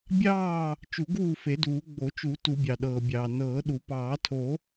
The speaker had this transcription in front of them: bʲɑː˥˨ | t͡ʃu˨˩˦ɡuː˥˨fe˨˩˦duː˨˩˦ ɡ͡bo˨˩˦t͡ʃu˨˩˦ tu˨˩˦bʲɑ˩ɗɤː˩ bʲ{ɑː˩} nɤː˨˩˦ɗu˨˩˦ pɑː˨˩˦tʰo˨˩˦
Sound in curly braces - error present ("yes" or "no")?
no